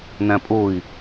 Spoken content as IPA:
n æ̃ pʼ ʊː i̯

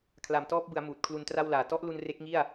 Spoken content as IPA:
kʰ l a˨˩ m t ɔː˦˥ p̚ b ɯ˩˦ a̯ m uː˨˩ t̚ kʰ l u˧ n t r a˥˩ w l aː˨˩ t ɔ˦˥ ʔ l u˧ n r e˦˥ k̚ ŋ i˥˩ a̯

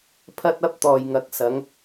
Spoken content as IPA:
pʰ ɐ˥ t̚ ɐ˥ p̚ t̪ ɔː˨ j ŋ ɐ˨˥ k̚ s ɐ˨˧ ŋ

